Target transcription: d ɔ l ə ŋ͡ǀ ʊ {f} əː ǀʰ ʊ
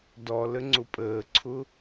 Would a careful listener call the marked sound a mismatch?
yes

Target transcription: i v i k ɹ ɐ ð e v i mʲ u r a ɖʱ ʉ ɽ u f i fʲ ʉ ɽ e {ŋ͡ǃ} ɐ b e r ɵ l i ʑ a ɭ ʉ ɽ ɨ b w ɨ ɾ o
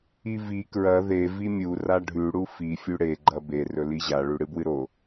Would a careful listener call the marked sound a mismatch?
yes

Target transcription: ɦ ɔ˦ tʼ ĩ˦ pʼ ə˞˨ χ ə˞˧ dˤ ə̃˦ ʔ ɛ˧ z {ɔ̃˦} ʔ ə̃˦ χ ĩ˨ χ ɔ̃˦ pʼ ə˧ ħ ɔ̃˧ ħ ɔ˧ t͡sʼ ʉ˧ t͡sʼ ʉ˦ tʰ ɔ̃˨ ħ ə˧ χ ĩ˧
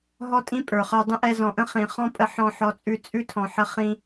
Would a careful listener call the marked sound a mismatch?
yes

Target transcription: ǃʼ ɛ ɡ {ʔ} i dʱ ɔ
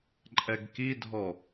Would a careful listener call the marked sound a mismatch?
yes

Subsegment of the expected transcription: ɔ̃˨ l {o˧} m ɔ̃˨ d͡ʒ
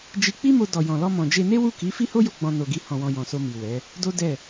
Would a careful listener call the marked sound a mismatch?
yes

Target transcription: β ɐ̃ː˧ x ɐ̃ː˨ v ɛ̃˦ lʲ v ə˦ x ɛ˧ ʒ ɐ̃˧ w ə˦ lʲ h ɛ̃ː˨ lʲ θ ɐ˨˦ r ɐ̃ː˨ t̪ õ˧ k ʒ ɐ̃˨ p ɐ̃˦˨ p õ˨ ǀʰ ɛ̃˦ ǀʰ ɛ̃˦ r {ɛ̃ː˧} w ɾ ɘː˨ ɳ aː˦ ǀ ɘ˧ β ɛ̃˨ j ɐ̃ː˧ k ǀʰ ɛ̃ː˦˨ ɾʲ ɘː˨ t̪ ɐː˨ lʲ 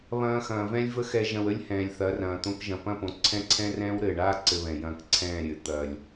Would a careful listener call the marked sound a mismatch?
yes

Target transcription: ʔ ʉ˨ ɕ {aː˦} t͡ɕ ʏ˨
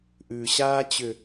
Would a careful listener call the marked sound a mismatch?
no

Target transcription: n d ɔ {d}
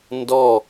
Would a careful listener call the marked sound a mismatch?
yes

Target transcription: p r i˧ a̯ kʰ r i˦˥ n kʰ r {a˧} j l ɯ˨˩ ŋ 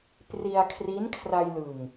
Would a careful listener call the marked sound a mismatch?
no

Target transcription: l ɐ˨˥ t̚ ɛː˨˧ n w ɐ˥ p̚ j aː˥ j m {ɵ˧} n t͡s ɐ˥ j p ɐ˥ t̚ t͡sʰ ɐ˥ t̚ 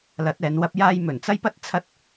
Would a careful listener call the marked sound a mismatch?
yes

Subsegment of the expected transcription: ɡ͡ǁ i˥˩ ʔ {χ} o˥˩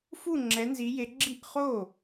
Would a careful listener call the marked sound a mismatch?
no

